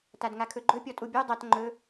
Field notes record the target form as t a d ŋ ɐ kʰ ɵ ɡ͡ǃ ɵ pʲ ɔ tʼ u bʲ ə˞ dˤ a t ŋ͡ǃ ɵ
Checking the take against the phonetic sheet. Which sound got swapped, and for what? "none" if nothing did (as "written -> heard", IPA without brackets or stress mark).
ɐ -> a